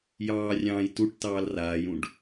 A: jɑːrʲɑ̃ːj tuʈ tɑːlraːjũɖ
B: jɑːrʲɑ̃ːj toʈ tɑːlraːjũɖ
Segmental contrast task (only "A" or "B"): A